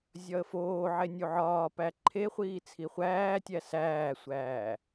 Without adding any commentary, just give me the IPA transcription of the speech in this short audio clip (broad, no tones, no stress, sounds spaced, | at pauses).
zʲ ɒ ə̯ f oː ʕ e nʲ u ʕ ɒː p æ ǃʰ e χʷ iː t͡sʰ i χʷ æː tʲ æ s æː sʷ æː